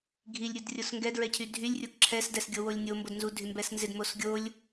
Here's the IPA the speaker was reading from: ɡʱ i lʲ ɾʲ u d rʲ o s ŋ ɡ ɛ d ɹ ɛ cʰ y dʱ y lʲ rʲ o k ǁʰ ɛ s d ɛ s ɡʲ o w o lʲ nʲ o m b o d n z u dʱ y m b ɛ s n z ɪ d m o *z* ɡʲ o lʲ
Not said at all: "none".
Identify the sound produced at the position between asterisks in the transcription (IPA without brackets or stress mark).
s